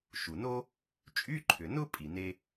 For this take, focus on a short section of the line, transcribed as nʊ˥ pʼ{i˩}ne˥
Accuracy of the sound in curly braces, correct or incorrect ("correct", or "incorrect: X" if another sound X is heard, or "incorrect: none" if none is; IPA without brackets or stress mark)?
correct